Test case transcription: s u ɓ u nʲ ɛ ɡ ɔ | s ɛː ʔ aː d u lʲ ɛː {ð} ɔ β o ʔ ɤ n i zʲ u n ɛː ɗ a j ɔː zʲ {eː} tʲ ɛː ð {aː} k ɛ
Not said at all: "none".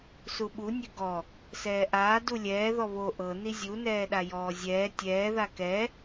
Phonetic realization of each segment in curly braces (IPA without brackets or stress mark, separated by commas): ð, ɛː, a